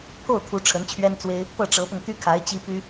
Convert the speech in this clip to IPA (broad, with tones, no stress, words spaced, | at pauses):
pʰo˥˩ʊ̯t̪ʰu˧˥ ʈ͡ʂʰə˧˥nt͡ɕʰɥɛ˥nt͡swe˥ɪ̯ | pɤ˥˩ʈ͡ʂɤ˧˥pʊ˧ŋ t̪y˥kʰa˧˥ɪ̯ t͡ɕi˥ py˥